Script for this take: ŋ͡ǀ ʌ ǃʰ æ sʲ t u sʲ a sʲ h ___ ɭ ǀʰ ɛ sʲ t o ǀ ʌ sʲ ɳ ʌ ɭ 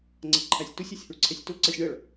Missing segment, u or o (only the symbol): u